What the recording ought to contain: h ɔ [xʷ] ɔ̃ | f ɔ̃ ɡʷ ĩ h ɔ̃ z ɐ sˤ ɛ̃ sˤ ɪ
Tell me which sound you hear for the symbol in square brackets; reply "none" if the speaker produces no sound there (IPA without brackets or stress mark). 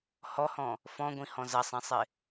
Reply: h